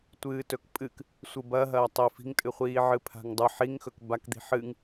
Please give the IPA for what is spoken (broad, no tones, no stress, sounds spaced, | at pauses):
tʷ ɨː t ɵ k pʼ ɨ k | sʷ ɨ b ɐ ɦ ɐː tˤ i f i̤ ŋ tʼ ɨ χʷ iː ʕ ɨ pʰ a̤ ŋ dˤ ɨ ħ i ŋ x ɵ k b a k d̪ i̤ ħ ɨ ŋ